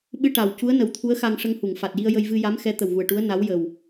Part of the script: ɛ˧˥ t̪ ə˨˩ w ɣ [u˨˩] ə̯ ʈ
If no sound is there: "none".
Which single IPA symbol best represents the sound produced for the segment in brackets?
u˨˩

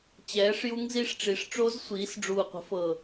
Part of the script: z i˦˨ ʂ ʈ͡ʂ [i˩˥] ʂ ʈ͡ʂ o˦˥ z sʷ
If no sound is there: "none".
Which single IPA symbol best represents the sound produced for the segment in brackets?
i˩˥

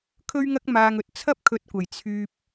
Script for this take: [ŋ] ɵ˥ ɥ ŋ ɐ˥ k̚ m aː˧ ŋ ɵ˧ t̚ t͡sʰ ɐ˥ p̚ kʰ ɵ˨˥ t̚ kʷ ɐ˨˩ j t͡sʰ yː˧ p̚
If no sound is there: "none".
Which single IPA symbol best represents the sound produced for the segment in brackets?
kʰ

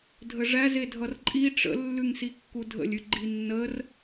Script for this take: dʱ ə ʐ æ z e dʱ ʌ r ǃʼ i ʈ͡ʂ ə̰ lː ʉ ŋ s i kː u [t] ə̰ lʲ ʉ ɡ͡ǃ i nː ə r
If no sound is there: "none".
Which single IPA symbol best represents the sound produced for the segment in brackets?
dʱ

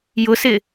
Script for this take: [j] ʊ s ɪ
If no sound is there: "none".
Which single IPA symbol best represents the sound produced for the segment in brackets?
j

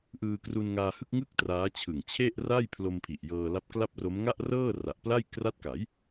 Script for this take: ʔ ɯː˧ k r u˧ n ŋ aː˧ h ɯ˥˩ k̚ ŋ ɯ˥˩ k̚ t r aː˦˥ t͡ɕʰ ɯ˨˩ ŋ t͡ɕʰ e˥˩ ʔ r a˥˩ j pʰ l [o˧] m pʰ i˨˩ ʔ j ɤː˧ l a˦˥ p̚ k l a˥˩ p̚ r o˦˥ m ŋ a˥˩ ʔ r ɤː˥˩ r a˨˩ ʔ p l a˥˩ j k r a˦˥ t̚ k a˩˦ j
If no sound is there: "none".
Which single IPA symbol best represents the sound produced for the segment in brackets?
o˧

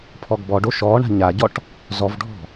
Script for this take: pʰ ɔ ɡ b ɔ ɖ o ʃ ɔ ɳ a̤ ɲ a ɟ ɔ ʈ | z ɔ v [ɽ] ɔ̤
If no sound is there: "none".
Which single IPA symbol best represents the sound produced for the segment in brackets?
ɖʱ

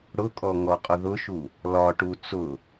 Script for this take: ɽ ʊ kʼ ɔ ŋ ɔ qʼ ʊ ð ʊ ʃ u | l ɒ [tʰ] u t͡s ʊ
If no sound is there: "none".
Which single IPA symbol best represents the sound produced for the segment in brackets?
ʈ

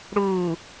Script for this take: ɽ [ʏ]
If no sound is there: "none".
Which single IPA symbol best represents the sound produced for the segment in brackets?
u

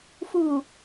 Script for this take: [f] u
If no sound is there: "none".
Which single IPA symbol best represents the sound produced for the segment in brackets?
f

